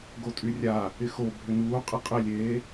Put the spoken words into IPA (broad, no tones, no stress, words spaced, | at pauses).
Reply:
ɡotʼyrʲa | ɪxo bʱʏnuː qʼɪqʼɪlʲeː